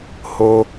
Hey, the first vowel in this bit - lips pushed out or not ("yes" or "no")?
yes